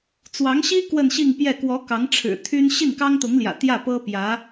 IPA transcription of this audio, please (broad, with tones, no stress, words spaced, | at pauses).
t͡swɑ˧˥ŋɕi˥ kwə˥˧nɕi˥˧ŋpjɛ˥˩ kwɔ˧˥ kɑ˧˥ŋʈ͡ʂʰɻ̩˨˩ t̪ʰy˥n ɕi˥˩nkɑ˥ŋt̪ʊ˧˥ŋljä̰˨˩ t̪jä˥˩ pɤ˥pjä˧˥